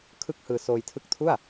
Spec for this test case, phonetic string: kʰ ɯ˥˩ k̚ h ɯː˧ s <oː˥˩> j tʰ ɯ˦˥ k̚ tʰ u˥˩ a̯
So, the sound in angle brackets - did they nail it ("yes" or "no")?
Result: no